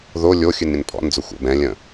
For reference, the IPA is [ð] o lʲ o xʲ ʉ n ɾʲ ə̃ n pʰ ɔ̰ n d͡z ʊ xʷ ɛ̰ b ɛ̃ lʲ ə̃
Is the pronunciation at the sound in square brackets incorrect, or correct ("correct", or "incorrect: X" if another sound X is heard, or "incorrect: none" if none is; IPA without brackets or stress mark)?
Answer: correct